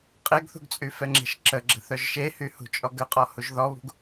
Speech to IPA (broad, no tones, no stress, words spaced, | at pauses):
qʼeɡθṳɡt͡sʼy fɛŋ͡ǁɛ̤ʃǁəɡ͡ǁə̤ θœʒʃehy hṳt͡ʃʼɔɡəqʼɔ huʒðɔβṳɡ